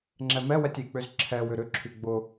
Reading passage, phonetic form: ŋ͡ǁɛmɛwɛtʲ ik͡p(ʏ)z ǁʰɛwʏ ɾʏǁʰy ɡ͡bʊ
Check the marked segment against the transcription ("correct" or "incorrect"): correct